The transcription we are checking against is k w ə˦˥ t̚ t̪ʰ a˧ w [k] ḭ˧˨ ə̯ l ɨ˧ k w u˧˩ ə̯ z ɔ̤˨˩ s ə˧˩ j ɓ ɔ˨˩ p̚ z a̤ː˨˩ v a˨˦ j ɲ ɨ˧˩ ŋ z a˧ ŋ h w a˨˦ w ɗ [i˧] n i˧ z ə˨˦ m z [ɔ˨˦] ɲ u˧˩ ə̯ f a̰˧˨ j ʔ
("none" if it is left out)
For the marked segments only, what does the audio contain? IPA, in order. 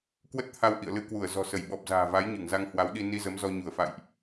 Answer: ʔ, i˧, ɔ˧

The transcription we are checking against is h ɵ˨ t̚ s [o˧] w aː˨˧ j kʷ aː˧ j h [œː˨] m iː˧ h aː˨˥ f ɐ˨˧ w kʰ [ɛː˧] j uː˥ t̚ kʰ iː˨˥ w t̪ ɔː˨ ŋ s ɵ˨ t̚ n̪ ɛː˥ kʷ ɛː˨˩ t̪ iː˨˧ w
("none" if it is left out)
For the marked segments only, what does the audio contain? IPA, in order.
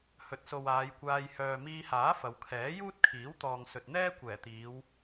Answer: o˨, œː˨, ɛː˨˥

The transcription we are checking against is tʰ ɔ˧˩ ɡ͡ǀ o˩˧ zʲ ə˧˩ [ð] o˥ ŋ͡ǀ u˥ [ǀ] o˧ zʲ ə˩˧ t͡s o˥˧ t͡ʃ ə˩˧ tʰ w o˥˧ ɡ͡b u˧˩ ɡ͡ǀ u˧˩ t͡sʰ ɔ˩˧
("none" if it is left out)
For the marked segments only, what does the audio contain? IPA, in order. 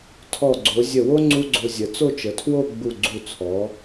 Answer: w, ɡ͡ǀ

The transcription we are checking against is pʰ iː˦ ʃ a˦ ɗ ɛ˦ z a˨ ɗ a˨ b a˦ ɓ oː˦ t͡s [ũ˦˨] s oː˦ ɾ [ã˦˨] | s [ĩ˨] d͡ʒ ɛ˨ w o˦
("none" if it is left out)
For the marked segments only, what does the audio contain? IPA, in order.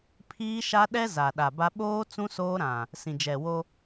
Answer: ũ˦, ã˨, ĩ˨

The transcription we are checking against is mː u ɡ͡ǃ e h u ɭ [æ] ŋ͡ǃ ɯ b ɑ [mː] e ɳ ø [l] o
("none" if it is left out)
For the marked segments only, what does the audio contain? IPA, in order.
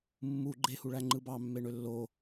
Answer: æ, mː, lː

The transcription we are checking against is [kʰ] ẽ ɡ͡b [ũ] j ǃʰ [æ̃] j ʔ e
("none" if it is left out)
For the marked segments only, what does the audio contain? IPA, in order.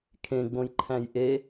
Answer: kʰ, õ, æ̃

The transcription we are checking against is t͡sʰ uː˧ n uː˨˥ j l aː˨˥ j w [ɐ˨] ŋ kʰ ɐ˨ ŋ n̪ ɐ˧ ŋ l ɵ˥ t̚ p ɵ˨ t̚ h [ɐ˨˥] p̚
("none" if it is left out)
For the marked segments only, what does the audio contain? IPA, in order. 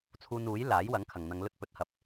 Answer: ɐ˨˥, ɐ˨˥

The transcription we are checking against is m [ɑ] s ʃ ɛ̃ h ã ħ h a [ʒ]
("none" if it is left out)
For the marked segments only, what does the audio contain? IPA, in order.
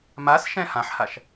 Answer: a, ʃ

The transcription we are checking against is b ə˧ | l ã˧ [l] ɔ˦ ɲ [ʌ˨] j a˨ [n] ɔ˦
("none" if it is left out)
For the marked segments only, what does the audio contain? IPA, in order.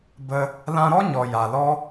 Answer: ɾ, ɔ˨, l

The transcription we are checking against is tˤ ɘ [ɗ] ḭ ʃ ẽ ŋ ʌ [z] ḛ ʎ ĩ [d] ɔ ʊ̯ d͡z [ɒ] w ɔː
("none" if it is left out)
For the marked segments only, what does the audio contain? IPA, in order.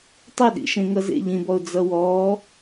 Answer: ɗ, z, b, ʌ

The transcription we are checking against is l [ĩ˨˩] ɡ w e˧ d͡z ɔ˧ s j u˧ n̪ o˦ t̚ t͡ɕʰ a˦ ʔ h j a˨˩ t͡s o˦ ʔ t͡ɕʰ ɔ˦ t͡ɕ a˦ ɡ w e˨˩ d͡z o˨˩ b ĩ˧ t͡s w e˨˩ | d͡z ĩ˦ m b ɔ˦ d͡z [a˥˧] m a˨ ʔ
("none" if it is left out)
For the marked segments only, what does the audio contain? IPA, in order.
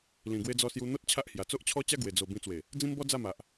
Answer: ĩ˨˩, a˥˧

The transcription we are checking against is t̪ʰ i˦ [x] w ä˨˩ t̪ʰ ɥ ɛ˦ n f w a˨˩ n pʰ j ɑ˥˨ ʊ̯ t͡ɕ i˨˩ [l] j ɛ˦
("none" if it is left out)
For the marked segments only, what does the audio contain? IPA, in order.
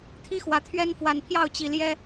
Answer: x, l

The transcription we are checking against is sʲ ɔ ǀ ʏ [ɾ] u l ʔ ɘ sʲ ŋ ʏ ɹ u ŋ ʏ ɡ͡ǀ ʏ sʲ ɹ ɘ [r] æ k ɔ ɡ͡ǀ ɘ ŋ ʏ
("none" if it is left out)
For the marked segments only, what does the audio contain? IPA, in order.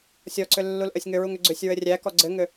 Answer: lː, rʲ

